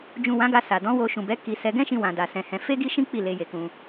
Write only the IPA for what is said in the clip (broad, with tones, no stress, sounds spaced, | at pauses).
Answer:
d͡ʒ ũ˨ w ã˨˦ ɡ a˧ s a˨ d ɔ̃˨˦ w o˧ ʃ ũ˨ b ɛ˨˦ k i˧ s ɛ˧ ɡ ɛ̃˦ ʃ ĩ˧ w ã˨ d a˨ s ɛ̃˧ h ɛ̃˧ f e˦ ɡ i˦ ʃ ĩ˦ k͡p i˦˨ l e˧ j e˨ k ũ˧